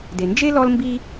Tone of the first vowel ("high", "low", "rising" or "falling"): low